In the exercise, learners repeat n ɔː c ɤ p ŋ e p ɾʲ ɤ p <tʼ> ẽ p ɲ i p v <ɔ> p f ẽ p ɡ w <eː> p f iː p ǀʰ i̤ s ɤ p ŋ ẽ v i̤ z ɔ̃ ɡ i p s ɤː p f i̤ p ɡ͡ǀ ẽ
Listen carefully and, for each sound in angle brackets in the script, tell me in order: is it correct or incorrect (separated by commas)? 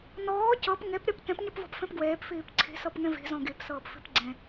incorrect, incorrect, correct